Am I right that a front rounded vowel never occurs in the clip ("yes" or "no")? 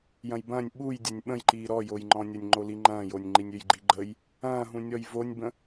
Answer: no